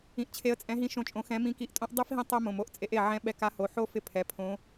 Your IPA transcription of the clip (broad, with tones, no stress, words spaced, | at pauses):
ĩ˧ʔt͡ɕʰe˧˥ə̯ t͡sʼɛ̃˧˥ɦĩ˧˥ ʃõ˧˥t͡ʃʼõ˧xɛ̃˧˥ mĩ˧˥ki˧˥ʔtʼõ˥ʔ dˤe˥fɦĩ˧˥ tˤɛ˥ mõ˩˧˩mo˧˥ʔt͡sʼe˧˥ʔ e˩˧˩ʕɛ̃˧˥ ɓɛ˧ka˧˥ho˩˧˩ ħo˥ fɪ˥ pʰɛ˩˧˩pʰõ˧˥